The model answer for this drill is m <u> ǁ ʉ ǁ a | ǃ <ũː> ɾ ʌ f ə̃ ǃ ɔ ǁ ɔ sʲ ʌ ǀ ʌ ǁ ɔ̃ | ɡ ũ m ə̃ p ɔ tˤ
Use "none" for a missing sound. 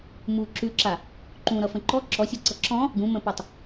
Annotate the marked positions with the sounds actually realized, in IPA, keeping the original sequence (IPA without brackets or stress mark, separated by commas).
u, ũ